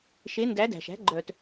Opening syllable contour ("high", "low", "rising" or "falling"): rising